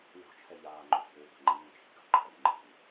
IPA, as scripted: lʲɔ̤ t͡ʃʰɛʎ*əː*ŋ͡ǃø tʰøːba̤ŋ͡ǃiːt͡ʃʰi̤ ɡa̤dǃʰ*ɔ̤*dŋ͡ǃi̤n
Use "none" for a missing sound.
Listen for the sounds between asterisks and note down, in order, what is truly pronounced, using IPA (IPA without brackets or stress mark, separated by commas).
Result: aː, ɔ